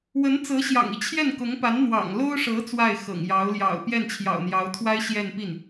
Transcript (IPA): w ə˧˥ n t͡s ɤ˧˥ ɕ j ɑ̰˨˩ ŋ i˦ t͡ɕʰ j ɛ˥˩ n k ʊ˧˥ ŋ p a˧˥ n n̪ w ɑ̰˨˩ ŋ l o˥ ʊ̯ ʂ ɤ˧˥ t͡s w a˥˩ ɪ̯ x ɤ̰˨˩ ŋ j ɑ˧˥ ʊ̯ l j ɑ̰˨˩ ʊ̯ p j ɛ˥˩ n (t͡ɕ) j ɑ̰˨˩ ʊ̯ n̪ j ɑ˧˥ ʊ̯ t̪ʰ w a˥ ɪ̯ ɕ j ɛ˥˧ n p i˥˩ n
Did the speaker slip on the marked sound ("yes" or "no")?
yes